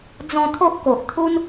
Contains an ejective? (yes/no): no